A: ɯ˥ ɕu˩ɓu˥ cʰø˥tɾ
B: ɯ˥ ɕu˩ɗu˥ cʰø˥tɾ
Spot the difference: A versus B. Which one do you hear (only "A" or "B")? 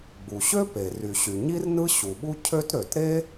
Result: A